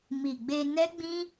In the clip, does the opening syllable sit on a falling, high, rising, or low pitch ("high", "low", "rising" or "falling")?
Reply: low